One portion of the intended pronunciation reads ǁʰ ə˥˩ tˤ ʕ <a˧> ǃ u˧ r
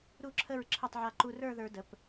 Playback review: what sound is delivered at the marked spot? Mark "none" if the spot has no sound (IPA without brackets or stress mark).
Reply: a˧